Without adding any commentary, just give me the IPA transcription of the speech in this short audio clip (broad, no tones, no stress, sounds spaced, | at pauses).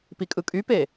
p i kʼ ɯ kʼ y p e